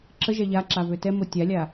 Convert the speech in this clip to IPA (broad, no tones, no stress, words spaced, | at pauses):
ǁə ʒɛʎaǁa vøtɛmo tʲalʲa